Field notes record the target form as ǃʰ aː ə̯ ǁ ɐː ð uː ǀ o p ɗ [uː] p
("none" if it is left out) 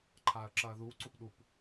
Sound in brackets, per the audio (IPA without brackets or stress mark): u